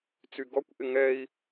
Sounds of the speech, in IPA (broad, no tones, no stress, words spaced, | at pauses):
t͡syɡɔkʷ ʔɪŋɛi̯